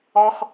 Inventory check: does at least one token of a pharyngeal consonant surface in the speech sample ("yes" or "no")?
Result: no